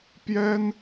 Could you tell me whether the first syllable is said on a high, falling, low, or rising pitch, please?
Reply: high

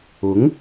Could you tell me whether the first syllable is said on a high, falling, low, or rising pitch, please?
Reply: rising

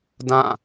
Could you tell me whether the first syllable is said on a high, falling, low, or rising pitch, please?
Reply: falling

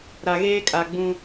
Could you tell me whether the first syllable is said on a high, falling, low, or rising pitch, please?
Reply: low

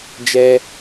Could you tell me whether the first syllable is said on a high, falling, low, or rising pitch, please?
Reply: high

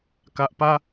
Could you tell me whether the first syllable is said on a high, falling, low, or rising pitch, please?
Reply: low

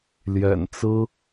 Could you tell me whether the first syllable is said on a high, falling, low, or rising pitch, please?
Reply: low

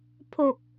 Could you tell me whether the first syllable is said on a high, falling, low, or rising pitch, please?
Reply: low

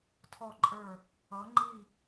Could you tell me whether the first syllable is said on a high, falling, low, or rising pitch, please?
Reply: falling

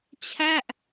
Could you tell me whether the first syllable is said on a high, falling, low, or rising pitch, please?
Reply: falling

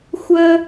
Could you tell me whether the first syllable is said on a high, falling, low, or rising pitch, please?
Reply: high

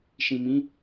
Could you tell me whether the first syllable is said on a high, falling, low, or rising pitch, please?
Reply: low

